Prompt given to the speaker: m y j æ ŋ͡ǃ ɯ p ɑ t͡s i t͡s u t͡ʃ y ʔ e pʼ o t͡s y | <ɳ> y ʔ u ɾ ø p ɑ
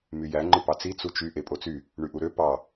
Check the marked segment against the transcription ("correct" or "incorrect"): correct